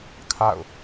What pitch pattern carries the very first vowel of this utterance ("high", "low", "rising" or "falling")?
falling